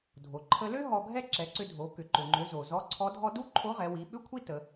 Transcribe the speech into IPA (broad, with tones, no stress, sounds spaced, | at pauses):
dʱ o˩ ǃʰ ə˧ l ø˥ ɦ ɔ˧ ɡʱ ɛ˥ ǁ ɛ˩˧ ǀ ʏ˧ dʱ o˩˧ k ʏ˩ ǃ ø˩ ŋ͡ǃ ø˩˧ z o˩ z ɔ˧˥ ǀʰ ɔ˧˥ dʱ ɔ˥ d u˥ ǃʰ o˧˥ ʁ ɛ˩˧ w i˩˧ ɓ ʏ˥ kʷʰ i˥ t ə˩˧